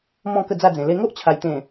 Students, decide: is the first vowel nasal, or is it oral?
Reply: nasal